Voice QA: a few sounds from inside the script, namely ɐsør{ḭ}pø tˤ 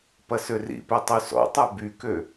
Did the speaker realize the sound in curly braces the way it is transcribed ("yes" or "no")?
yes